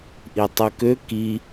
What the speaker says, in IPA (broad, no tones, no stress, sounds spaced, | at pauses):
ʔ i tˤ u k ø k i